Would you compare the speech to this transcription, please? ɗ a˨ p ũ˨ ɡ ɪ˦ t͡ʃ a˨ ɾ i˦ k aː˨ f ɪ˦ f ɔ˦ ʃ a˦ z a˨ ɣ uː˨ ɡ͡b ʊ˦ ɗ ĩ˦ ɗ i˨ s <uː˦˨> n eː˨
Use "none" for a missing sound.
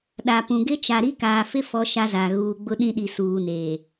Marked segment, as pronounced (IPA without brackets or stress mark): uː˨